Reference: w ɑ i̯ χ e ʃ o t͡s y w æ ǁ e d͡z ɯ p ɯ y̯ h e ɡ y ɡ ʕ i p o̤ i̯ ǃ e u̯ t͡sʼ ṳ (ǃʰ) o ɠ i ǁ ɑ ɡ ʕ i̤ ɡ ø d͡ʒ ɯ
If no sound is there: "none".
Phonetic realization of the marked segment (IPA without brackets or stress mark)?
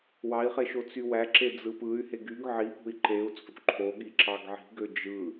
ǃʰ